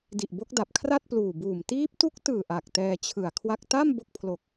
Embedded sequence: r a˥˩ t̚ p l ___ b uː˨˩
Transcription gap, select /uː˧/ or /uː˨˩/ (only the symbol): uː˨˩